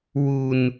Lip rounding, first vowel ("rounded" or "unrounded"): rounded